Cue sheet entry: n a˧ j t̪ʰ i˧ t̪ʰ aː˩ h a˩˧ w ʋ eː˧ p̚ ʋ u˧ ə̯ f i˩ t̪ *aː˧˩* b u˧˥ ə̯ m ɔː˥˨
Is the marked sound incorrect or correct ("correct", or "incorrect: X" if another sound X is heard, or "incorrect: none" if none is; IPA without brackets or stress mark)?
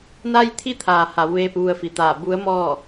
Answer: correct